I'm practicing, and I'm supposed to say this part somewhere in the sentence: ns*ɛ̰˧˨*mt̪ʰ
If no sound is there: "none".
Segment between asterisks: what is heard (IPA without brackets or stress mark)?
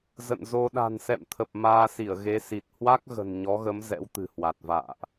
ɛ̰˧˨